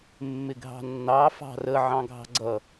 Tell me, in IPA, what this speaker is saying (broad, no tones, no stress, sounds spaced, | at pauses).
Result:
mː ɪ ɡʱ ɑ̤ nː ɑ f ɑ̤ r ə ʕ ɑ̃ ɡʱ ɑ̤ ɡ͡ǀ ʌ